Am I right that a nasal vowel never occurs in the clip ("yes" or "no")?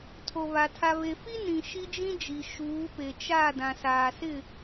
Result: no